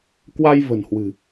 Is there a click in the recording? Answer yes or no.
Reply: no